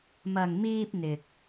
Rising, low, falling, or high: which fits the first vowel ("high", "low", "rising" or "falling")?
low